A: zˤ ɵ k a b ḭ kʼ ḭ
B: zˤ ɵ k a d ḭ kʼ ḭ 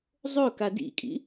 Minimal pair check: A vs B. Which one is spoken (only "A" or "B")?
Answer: B